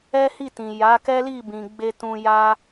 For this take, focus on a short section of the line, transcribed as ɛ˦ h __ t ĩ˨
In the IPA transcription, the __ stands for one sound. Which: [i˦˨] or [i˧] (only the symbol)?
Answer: i˦˨